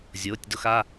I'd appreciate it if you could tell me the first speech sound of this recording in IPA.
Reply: zʲ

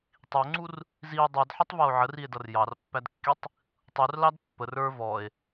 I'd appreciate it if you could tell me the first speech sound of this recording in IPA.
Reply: tˤ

